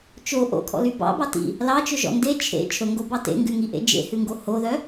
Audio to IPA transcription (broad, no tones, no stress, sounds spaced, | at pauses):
t͡ʃ o ʔ o̰ kʰ ɔ̰ l y b ɑ̰ b ɑ t ḭ | l ɑ t͡ʃ ɵ ʒ ɔ̰ n d e t͡ʃʰ ḛ t͡ʃʰ ɵ ŋ ɡ o b ɑ t ḛ ŋ ɡ ʉ ŋ i ʔ ḛ d͡ʒ ḛ h ʉ ŋ ɡ o h o ð œ